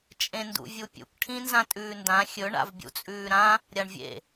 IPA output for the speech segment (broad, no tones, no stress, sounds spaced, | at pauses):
t͡ʃʼ ẽ n d ṵ vʲ u pʲ ṵ k ʈʰ ĩ n z ã tʼ ʉː n d ã xʲ ɵ ɳ a̰ v bʲ ṵ t͡sʼ ʉː ɾ ã | ɾʲ a ɳ vʲ ḛ